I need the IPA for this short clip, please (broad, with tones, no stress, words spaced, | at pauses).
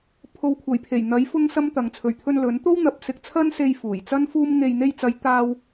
pʰo˨˧wkʷʰɐ˨˩jpʰe˨˩j n̪ɐ˨˥j fʊ˥ŋsɐ˥mt̪ɐ˨˧ŋ t͡sʰɵ˨˩ɥt̪ʰɵ˧n lɵ˨˥nt̪o˥wn̪ɐ˨p̚ sɪ˧k̚t͡sʰɐ˥nse˧j fuː˨˩j t͡sɐ˥nfuː˥m ŋe˧j n̪e˧jt͡sɐ˨˧j t̪aː˥w